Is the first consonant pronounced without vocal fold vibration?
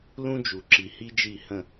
no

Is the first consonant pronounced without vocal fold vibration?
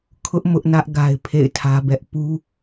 yes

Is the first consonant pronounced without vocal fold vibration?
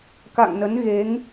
yes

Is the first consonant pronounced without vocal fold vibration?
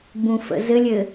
no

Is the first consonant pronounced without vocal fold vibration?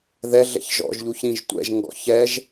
no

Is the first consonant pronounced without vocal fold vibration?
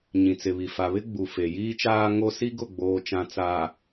no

